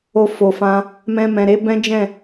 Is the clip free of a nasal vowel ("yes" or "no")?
no